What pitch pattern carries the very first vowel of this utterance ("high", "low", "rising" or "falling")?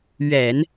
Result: low